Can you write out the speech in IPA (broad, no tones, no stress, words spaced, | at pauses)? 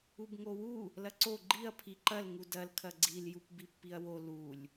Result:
ubŋowu | lɐǀo ɡ͡ǃiɐ̯ pʰiǃɐl ŋudɐl kʰɐɡ͡ǀil jupbipːiɐ̯wo lulʲ